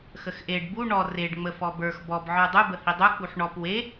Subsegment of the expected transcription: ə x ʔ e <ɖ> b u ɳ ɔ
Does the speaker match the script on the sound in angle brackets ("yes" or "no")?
yes